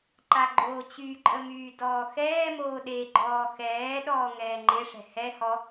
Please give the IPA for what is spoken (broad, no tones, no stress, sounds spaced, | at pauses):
ǃ a ɡ͡ǃ oː t͡ɕ y ǃʼ ə m yː d ɔː x ɛː m oː ɗ e ɡ͡ǃ ɔː x ɛː ɗ ɔː ŋ ɛː ŋ͡ǃ e ʂ ɛ̤ h ɛ h ɔ